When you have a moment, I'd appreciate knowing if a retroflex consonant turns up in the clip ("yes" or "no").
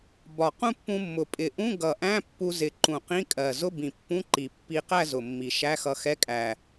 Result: no